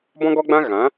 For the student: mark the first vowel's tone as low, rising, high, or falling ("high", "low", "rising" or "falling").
high